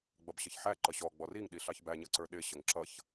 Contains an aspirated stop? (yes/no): no